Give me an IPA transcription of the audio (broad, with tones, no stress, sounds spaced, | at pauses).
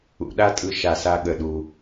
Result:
ṵ˨ ɗ a˦ tʼ ɯ˨ ʃ a˩ s a˨ ɠ ə˩ ɗ u˩